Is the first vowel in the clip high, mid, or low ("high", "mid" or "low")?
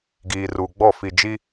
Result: high